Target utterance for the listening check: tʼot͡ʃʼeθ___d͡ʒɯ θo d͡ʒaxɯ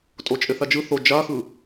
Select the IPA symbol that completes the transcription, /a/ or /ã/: a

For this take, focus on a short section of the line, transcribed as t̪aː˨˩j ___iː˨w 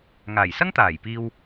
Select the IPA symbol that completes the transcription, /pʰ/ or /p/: p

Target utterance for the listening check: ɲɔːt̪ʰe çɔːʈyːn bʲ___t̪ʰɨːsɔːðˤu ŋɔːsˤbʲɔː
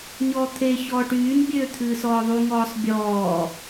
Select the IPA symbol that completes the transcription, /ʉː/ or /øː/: øː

